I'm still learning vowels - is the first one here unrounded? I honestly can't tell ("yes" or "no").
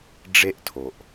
yes